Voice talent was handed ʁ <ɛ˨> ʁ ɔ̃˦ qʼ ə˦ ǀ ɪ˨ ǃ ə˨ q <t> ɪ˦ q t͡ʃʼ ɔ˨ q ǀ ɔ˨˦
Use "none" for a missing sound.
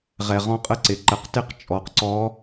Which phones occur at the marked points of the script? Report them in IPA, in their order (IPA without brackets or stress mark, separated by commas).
ɛ˨, t